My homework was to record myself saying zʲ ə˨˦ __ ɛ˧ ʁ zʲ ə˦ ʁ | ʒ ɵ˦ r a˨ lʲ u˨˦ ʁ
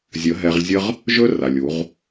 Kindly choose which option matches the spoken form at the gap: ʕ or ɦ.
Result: ɦ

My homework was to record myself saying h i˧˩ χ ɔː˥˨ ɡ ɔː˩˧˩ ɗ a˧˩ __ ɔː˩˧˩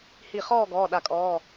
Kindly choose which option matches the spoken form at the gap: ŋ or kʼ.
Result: kʼ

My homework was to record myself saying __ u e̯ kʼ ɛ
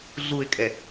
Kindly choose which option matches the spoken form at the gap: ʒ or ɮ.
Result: ɮ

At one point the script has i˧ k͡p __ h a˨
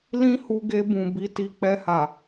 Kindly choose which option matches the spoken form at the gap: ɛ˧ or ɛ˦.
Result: ɛ˧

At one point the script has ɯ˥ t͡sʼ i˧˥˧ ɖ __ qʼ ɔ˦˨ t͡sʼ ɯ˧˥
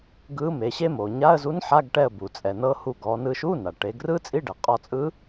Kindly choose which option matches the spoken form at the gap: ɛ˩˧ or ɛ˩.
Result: ɛ˩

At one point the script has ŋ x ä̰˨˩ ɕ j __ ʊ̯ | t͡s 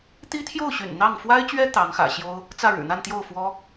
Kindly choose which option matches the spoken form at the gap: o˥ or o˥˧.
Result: o˥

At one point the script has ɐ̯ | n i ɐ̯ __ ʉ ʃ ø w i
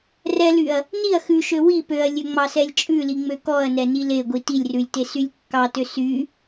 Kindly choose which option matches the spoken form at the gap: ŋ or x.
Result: x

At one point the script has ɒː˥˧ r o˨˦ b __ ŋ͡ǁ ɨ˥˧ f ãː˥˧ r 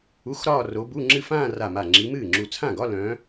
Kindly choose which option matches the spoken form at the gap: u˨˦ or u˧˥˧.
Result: u˧˥˧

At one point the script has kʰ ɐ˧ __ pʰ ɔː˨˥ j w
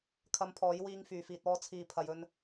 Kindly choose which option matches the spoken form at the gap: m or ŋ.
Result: m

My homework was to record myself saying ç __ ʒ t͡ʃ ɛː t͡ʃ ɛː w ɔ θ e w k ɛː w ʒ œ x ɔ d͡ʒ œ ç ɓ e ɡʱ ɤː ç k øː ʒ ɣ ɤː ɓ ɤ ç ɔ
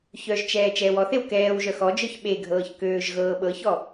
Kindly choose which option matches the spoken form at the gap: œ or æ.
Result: œ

